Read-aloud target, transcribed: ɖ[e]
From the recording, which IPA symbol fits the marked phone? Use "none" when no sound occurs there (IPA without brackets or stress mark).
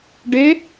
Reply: e